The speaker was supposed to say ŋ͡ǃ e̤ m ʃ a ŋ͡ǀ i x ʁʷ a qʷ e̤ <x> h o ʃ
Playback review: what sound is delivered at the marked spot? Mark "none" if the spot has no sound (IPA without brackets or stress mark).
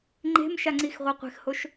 x